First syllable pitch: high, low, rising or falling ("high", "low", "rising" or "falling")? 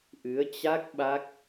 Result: rising